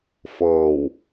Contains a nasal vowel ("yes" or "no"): no